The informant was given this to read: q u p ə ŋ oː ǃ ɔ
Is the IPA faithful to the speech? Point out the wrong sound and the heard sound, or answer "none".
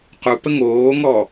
ǃ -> ŋ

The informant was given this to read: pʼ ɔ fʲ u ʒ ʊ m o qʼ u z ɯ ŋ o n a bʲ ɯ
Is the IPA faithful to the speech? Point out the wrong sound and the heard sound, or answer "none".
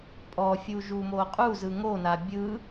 ʊ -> u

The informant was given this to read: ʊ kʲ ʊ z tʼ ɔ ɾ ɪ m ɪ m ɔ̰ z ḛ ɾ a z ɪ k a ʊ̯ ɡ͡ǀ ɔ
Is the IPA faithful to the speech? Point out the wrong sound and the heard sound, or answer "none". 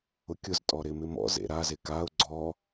none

